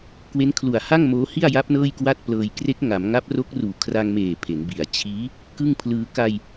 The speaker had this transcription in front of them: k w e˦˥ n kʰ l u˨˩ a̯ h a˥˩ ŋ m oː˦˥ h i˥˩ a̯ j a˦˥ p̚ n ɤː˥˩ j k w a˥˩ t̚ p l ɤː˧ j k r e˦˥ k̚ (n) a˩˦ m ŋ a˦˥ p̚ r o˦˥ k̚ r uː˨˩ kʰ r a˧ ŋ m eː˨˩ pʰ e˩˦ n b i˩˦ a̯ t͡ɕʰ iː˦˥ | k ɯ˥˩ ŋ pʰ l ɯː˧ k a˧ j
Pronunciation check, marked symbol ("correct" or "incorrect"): incorrect